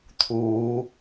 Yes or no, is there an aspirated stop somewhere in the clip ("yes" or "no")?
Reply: yes